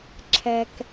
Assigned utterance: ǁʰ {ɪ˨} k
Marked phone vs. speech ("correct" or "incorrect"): incorrect